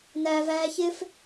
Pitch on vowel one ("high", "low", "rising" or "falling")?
high